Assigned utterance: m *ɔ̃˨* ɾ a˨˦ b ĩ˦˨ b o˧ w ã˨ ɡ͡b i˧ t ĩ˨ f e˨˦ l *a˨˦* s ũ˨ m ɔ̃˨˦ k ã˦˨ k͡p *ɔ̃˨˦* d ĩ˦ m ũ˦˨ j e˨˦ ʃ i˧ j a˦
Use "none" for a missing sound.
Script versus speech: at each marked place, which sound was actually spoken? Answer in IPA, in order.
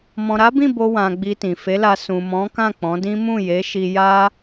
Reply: ɔ̃˨, a˧, ɔ̃˨˦

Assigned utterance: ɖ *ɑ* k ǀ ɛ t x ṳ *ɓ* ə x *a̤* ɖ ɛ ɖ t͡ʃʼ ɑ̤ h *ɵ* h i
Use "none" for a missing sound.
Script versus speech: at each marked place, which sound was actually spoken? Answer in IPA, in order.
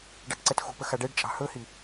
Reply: ɑ, p, a, ɵ

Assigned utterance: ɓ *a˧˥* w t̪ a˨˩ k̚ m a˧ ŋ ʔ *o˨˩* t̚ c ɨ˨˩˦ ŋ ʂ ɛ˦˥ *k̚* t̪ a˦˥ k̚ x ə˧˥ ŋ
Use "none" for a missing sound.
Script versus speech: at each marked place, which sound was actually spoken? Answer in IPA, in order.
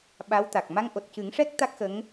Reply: a˧˥, o˨˩, k̚

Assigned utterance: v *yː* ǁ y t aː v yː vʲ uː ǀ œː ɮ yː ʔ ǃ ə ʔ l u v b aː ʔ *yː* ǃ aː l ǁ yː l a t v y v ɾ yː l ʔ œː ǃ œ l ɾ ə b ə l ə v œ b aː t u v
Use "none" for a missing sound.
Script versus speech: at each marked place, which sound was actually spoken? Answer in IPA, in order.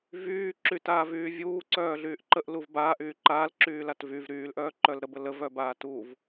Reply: yː, yː

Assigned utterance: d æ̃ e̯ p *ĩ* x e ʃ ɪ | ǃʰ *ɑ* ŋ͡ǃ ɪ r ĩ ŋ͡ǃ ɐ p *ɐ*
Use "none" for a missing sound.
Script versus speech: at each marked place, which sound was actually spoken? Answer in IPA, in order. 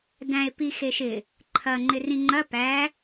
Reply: i, ɐ, æ

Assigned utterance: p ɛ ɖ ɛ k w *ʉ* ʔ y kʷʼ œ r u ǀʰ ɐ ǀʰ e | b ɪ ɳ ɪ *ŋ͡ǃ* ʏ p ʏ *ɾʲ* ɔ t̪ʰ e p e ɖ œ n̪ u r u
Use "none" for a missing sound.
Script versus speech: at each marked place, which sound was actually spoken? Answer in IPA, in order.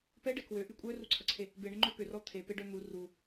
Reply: ø, ŋ͡ǃ, r

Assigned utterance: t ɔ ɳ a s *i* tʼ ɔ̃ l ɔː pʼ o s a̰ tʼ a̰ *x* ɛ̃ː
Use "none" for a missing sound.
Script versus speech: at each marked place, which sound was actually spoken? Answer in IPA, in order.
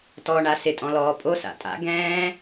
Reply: ɪ, ɡ

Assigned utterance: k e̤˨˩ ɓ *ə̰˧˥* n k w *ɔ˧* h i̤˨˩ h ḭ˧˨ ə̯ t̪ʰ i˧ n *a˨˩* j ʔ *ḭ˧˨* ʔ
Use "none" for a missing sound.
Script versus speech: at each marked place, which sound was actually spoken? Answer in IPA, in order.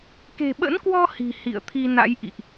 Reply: ə̰˧˥, ɔ˧, a̰˧˥, ḭ˧˨

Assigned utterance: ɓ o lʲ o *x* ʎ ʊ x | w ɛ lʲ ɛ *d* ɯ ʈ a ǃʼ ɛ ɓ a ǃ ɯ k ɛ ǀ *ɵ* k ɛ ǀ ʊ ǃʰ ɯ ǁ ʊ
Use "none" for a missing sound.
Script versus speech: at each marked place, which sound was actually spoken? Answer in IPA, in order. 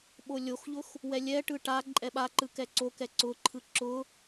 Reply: x, ʈ, o

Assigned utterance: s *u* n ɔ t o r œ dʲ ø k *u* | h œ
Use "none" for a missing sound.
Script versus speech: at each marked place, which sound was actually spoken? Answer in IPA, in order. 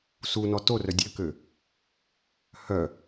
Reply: u, ø

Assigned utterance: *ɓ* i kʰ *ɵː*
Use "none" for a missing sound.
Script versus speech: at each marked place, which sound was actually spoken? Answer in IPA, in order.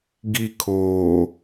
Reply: ɡ, oː

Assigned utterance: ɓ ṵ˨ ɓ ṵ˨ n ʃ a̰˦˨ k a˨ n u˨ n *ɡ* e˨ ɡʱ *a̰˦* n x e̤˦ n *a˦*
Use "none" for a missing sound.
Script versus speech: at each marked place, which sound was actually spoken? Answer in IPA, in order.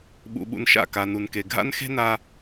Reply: k, a̰˦, a˦

